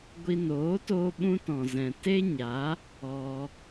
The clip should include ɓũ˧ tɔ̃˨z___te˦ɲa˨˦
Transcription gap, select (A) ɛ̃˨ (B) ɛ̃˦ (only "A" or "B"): A